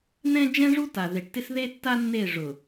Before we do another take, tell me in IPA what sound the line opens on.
n̪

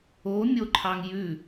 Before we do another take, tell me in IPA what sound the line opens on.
o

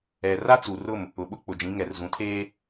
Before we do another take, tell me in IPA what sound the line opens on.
ɛ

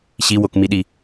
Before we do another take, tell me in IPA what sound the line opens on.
ɕ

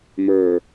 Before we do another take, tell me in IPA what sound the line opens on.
m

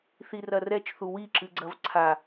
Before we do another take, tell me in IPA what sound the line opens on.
θ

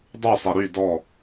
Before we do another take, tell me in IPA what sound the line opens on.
dˤ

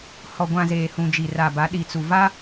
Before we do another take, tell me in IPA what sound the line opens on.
h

